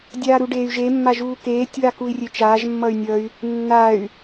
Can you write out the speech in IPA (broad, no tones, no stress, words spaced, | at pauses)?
dʲaːɾuɖeːy̯ʒe mːaʒuːkeːtʲ wakui̯rʲet͡ʃaːʒ mːʌy̯nʲʌy̯ | nːay̯